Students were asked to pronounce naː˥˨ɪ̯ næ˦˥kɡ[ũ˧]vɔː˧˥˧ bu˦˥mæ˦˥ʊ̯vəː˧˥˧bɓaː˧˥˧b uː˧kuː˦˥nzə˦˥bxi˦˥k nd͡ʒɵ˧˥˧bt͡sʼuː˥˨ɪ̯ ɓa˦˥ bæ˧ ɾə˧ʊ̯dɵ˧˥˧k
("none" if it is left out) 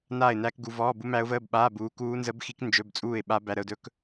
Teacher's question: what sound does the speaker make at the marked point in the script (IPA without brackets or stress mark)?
u˧